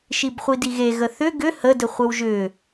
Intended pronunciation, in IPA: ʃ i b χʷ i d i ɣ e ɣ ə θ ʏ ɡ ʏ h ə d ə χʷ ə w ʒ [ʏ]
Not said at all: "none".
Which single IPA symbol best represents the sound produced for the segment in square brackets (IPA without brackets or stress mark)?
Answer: ʏ